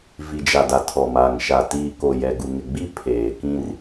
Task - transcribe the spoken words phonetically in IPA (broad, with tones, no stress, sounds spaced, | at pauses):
v i˨ d͡ʒ a˨ d a˨ tʰ ɔ˨ m a˨ ŋ ʃ a˨ t iː˨ k o˨ j ɛ˨ ɡ u˨ ŋ ɪ˨ ɡ͡b i˦ pʰ eː˨ k ĩ˦ r